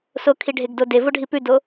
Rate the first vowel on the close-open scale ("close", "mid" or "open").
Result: mid